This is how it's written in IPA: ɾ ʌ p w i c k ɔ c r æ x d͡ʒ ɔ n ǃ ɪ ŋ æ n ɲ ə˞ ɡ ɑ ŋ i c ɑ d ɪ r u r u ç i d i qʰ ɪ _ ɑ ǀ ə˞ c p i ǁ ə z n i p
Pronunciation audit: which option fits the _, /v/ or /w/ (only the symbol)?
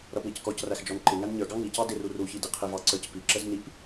v